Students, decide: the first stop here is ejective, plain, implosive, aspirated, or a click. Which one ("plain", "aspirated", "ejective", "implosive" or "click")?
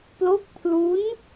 plain